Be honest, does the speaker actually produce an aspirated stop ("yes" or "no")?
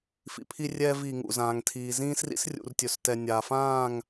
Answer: yes